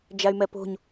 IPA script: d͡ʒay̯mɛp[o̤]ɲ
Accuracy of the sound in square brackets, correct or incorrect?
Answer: correct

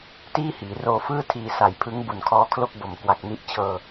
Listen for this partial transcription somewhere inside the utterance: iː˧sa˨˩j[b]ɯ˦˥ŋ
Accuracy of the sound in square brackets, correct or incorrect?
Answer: incorrect: pʰ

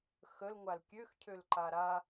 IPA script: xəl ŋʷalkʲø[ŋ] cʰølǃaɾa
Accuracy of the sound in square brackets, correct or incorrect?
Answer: incorrect: x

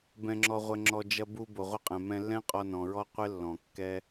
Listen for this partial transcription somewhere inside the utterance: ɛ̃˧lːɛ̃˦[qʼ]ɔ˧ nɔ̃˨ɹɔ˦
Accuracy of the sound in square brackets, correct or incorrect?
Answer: correct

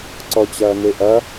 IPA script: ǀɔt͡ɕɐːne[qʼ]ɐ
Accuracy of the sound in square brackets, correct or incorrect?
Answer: incorrect: ʔ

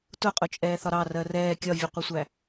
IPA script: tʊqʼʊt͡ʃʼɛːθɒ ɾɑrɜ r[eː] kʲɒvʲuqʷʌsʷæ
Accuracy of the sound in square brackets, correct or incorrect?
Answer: incorrect: ɛː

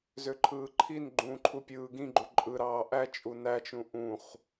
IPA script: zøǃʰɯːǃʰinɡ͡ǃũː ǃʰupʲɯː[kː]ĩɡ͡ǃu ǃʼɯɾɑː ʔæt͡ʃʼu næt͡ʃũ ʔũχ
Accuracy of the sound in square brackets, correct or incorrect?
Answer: incorrect: ɡ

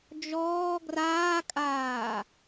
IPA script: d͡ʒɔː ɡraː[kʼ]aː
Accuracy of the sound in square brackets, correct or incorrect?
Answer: correct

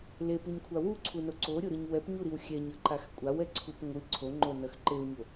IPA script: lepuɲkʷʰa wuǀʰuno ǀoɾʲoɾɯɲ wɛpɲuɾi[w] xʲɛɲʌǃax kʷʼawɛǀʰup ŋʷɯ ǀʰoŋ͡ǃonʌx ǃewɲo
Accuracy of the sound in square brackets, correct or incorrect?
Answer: correct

